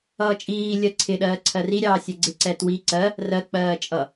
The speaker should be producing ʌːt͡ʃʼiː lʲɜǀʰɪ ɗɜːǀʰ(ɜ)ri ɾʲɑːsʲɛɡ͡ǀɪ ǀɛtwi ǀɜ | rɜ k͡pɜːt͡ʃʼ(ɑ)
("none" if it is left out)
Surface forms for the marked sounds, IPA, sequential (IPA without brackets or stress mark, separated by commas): ɜ, ʌ